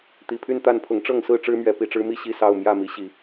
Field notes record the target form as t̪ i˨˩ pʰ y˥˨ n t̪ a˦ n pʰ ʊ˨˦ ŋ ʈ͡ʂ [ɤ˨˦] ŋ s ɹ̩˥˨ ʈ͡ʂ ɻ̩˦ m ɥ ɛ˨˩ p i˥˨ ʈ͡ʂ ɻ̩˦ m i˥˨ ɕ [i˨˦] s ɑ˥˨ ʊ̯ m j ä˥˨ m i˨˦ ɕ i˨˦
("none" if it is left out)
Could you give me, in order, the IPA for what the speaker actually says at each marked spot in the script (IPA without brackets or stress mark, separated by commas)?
ɤ˥˨, i˥˨